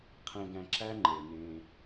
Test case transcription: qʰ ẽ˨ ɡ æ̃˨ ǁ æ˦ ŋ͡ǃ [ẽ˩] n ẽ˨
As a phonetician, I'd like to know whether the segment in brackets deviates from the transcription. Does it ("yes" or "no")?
yes